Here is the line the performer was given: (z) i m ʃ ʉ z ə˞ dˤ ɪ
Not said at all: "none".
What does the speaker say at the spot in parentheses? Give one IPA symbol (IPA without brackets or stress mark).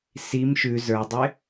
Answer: s